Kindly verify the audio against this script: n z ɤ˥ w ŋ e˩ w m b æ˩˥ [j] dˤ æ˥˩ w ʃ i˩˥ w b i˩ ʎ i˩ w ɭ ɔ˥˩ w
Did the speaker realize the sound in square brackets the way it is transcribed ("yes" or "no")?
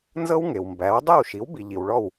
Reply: no